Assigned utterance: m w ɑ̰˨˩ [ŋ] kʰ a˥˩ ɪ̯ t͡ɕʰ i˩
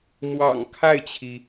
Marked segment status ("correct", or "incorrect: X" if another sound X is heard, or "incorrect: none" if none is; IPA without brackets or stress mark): correct